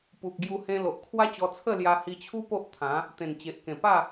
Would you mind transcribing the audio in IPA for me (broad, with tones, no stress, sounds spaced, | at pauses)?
p u˨ k̚ ɡ j u˧ h ẽ˧ l o˨ ʔ kʰ w a˦ t͡ɕ ɔ˧ t͡sʰ ə˥˧ l j a˧ h i˧ t͡ɕʰ u˦ p o˦ ʔ t̪ʰ ã˨˦ | t̪ ẽ˨˩ n t͡ɕ e˨ ʔ k ẽ˨˩ p a˥˧